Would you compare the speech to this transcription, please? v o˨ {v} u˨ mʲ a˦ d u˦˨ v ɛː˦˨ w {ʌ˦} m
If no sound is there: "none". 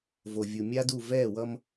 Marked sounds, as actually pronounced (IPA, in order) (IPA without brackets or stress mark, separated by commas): vʲ, ʌ˦